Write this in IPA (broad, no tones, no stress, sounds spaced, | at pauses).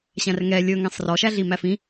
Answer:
ɕ æ̃ r ŋ ɛ lʲ ɵ ŋ ɛ̃ sˤ r ɔ ʃ æ ɮ i m æ f ĩ